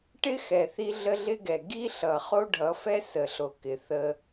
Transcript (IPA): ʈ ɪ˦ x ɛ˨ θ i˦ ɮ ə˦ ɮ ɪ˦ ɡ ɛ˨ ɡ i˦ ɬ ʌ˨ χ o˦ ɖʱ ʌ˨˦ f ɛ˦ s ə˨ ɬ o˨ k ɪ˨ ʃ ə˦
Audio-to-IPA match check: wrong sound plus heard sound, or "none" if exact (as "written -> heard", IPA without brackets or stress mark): ʃ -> θ